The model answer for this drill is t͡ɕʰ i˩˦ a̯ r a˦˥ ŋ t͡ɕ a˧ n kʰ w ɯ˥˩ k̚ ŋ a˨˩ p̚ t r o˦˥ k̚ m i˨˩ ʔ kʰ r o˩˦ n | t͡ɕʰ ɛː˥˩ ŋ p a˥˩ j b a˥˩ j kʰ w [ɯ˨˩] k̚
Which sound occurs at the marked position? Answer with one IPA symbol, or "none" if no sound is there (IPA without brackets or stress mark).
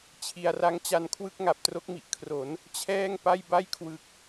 ɯ˨˩